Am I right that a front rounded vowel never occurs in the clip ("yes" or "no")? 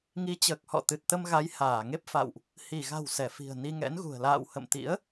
yes